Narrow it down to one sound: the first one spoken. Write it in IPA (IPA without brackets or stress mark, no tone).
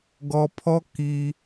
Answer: ɡ